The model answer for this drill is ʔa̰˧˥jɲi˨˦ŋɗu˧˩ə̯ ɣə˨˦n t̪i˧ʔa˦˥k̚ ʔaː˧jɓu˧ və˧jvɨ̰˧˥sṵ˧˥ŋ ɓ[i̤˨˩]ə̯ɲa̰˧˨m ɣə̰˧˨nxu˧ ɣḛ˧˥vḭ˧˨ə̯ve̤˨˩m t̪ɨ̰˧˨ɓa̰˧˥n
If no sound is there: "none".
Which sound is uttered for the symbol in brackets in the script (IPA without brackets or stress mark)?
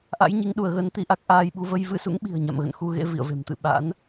i̤˨˩